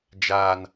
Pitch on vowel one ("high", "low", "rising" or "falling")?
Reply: low